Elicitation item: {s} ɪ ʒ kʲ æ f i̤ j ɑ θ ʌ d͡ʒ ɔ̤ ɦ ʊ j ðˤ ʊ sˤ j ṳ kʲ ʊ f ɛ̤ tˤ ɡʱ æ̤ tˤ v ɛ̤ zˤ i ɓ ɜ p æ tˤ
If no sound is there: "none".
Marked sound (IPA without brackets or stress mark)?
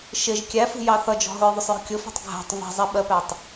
ʃ